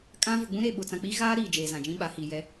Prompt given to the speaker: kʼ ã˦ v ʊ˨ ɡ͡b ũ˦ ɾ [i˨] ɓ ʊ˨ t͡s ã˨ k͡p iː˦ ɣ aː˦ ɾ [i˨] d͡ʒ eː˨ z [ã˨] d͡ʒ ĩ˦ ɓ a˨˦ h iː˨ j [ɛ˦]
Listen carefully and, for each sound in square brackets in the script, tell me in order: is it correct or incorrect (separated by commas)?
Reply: incorrect, incorrect, correct, correct